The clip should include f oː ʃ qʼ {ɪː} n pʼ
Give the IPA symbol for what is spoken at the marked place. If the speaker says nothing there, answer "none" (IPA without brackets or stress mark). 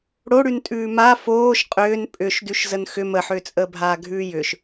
ʏː